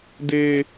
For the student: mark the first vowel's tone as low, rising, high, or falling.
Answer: high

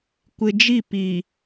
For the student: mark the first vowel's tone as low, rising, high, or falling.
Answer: low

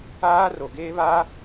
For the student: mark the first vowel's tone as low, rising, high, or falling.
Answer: high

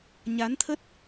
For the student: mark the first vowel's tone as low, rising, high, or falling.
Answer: rising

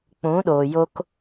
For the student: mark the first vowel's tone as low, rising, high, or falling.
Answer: rising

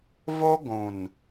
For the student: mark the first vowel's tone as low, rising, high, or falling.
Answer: high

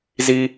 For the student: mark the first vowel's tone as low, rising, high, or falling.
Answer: high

